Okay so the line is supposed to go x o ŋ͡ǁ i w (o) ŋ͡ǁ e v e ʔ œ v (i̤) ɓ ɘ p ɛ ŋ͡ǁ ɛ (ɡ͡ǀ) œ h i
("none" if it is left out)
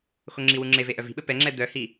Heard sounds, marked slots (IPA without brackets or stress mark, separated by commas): u, i̤, d̪